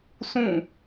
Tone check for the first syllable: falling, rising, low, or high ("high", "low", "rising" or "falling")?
falling